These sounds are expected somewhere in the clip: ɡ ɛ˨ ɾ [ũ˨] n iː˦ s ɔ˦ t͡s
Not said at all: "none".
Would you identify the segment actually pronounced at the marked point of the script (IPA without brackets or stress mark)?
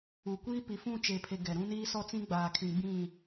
ũ˦